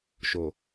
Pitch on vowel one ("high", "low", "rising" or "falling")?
low